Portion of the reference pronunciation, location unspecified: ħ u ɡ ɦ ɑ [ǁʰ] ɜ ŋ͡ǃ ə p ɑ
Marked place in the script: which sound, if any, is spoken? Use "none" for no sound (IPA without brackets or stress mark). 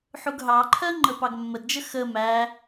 ǃʰ